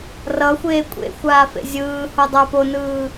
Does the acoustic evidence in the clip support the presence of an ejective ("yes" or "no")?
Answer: yes